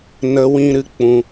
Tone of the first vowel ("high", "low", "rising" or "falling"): high